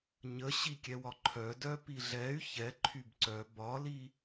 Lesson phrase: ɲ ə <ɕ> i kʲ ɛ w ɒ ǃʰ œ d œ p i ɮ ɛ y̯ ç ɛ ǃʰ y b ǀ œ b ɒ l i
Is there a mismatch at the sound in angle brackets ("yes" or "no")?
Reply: no